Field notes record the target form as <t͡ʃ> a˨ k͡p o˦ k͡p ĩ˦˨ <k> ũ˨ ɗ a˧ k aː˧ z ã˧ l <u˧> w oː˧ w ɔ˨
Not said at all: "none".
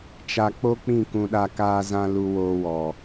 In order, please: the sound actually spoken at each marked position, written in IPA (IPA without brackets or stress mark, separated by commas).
t͡ʃ, k, u˧